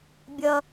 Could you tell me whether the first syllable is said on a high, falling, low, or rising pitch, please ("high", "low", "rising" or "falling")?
high